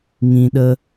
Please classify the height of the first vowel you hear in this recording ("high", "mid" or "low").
high